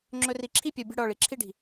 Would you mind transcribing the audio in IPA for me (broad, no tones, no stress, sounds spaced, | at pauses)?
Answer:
ŋ͡ǁ ɵ r i ǁʰ i pʲ ə˞ bʲ ə̤ ɽ ɔ ɭ i ǁʰ i ɖ i̤